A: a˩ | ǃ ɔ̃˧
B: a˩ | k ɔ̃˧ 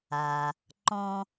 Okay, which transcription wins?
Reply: A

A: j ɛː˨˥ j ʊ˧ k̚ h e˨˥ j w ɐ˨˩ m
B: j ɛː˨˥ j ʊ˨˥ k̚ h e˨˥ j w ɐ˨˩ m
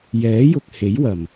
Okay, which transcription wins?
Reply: A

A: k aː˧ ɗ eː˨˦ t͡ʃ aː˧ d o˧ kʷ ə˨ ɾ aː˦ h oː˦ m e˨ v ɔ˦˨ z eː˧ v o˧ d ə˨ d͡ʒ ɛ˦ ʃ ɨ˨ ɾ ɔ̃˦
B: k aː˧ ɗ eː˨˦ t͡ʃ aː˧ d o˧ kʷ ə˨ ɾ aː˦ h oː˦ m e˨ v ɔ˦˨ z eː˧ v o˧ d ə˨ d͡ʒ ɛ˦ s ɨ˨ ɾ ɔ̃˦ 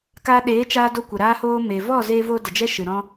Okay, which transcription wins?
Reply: A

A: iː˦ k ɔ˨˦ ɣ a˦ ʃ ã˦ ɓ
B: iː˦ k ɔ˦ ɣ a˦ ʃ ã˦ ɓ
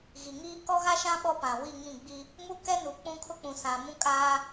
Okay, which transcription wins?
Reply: B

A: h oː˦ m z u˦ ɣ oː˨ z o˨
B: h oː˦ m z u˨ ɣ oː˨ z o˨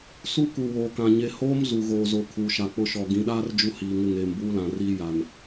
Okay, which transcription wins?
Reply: B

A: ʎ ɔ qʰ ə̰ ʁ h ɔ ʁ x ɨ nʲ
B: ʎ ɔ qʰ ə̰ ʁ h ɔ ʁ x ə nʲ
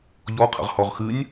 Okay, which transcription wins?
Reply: A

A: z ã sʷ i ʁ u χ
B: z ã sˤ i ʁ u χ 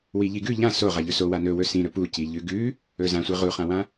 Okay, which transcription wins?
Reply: A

